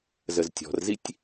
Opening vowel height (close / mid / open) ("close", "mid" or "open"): mid